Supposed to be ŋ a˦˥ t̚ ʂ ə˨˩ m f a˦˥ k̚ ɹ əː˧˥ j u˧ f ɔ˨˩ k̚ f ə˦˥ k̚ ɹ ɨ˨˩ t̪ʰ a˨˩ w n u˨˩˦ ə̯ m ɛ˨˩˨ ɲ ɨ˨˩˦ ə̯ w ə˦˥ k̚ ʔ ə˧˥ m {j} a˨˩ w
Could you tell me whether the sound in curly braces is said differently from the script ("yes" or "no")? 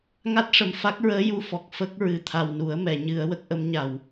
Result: yes